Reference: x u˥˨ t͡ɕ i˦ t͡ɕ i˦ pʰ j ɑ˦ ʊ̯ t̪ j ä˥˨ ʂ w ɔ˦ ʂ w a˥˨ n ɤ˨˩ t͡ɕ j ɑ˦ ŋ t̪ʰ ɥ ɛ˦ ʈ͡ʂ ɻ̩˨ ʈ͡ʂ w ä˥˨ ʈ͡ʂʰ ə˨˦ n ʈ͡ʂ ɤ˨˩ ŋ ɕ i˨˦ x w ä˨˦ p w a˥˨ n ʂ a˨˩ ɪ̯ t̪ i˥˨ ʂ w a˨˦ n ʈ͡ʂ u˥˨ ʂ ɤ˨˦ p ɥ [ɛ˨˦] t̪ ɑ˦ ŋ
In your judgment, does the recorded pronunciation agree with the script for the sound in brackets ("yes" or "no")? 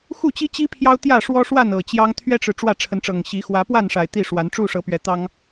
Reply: no